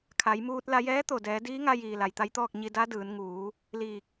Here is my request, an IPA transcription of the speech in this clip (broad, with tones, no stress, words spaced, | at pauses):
kʰa˩˧jmuː˧t̚ la˧jɛː˧˥t̪o˧˩dɛː˩˧ diː˧˥ŋa˧jiː˩ la˩jt̪a˧˥jt̪ɔː˥˨k̚ ɲi˧da˧˥dɯː˩˧n ŋuː˩˧ | liː˧˩k̚